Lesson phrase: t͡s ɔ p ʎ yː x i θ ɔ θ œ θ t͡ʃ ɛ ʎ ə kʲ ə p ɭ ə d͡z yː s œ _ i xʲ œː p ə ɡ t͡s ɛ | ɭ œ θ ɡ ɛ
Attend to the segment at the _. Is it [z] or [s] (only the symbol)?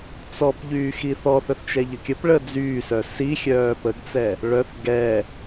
s